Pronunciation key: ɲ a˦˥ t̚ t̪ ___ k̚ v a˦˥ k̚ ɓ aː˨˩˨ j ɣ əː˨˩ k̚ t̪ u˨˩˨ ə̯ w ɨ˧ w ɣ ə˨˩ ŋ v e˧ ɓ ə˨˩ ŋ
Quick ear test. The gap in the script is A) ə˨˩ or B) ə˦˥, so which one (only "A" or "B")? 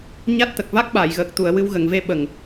A